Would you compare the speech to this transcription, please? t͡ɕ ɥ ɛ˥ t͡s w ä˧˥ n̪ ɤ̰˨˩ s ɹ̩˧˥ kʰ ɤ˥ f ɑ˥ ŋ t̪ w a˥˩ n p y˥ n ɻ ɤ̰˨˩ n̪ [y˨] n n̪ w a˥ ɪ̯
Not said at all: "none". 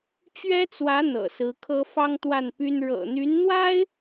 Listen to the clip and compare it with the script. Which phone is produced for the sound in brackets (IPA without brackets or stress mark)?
y˧˥